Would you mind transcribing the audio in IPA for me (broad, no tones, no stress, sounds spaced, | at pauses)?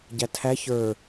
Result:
ɟ æ tʰ æ ç ə˞